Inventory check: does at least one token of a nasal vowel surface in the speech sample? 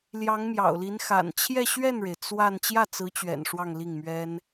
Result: no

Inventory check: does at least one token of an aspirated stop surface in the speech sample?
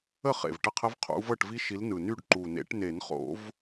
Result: yes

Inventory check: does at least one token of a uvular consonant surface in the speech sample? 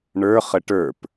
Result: yes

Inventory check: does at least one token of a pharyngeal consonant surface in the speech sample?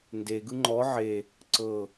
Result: yes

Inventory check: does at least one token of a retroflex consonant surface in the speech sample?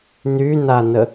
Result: no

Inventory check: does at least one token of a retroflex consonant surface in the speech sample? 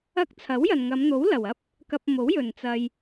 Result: no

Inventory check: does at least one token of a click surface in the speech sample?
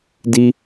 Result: no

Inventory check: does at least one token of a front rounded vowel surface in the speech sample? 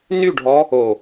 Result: yes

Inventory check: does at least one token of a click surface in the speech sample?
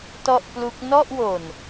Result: no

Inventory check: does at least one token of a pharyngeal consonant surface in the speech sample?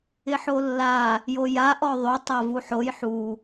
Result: yes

